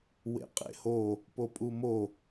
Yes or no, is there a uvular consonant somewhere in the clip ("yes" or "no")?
yes